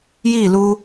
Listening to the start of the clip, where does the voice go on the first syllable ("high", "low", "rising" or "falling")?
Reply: falling